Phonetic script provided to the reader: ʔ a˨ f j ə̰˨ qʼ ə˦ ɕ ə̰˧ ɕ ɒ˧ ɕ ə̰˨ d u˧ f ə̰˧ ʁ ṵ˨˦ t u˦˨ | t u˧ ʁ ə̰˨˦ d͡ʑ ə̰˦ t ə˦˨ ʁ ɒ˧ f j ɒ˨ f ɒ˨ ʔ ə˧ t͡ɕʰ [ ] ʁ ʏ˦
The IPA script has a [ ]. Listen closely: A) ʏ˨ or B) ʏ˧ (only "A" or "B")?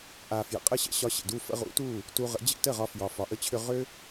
B